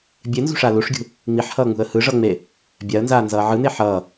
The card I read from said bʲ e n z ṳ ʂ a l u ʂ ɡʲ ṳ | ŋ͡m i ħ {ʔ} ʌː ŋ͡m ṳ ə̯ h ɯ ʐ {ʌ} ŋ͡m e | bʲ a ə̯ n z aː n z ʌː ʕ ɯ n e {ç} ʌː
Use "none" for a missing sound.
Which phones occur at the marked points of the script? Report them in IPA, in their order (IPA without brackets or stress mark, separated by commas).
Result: h, ʌ, ħ